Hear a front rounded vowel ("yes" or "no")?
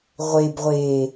no